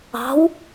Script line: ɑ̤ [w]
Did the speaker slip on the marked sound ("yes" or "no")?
no